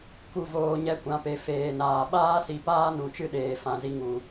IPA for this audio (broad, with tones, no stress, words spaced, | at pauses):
ku˦˨voː˧ ɲɛ˦kʷã˨˦pe˨ feː˨naː˨ ɓaː˦si˨paː˦ nũ˨t͡ʃɨ˦ɗeː˨ fã˧zi˧ŋu˨